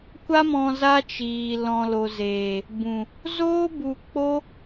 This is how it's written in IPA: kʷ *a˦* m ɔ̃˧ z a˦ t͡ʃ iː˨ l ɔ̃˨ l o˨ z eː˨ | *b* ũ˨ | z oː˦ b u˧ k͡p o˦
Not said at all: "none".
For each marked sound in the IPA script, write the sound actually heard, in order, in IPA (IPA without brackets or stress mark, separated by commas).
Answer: a˦, b